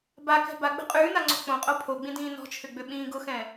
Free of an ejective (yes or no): no